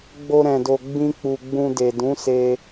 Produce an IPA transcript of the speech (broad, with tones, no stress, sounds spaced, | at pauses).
ɡ͡b o˧ ɾ ɛ̃˨ d o˨ ɡ͡b ĩ˧ k͡p u˨ ɡ͡b ũ˧ d e˨ d ũ˨˦ s e˧